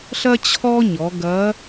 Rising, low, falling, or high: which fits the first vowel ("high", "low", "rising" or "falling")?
high